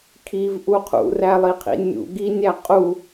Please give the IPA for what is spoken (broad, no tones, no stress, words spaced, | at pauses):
kʰivʔu qʰṵrælˠiqʰḭ nʲṵ ɡinʲæ qʼu